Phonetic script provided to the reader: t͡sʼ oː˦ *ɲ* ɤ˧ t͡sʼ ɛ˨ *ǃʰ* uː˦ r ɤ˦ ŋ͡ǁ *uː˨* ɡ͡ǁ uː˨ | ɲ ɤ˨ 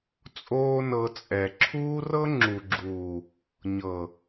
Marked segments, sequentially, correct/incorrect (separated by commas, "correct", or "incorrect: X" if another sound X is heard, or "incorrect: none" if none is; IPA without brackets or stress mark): incorrect: n, incorrect: ǁʰ, incorrect: u˨